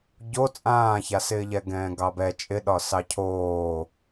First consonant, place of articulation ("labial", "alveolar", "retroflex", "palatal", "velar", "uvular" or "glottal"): palatal